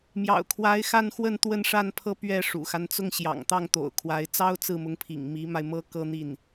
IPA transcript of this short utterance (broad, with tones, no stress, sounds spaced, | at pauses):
m j ɑ̰˨˩ ʊ̯ kʰ w a˧˥ ɪ̯ x a˥˧ n x w ə˥˧ n t̪ w ə˥˧ n ʂ a˥˧ n pʰ ɤ˥˧ p ɥ ɛ˥˩ ʂ ṵ˨˩ x a˦ n t͡s ʊ˥˩ ŋ ɕ j ɑ̰˨˩ ŋ t̪ ɑ˥˩ ŋ t̪ o̰˨˩ ʊ̯ kʰ w a˧˥ ɪ̯ t͡s ɑ˥ ʊ̯ t͡s ɹ̩˥˩ m ʊ˧˥ ŋ pʰ ḭ˨˩ ŋ m i˧˥ m a˧ ɪ̯ m ɤ˥ k ɤ˥ n̪ i˥˩ n